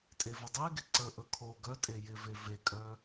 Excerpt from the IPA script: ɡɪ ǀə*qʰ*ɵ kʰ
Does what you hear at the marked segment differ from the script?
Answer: yes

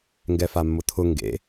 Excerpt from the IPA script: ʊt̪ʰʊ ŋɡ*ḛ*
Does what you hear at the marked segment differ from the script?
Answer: no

